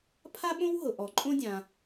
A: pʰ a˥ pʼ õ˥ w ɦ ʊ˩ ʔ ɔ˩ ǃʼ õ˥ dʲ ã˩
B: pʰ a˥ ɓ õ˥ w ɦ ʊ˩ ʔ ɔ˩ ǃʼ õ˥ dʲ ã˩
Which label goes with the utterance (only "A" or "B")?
B